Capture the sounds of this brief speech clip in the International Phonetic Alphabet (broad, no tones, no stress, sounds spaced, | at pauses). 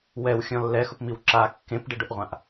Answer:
w ɛ w xʲ ɔ̃ lː ɛ x ʊ p m i w ǁ a kː ẽ p ɖ ɪ ɖ ʊ ʔ ʁʷ ã ʔ